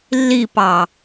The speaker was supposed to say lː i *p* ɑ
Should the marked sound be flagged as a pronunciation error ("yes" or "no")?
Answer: no